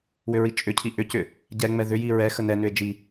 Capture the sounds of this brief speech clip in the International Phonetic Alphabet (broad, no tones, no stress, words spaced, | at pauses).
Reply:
wʏɹit͡ʃʼʏcʰi ʔʏcʏ | ɟɛŋ͡mɛ ðʏji ɹɛ xənɛnʏe̯ d͡ʒi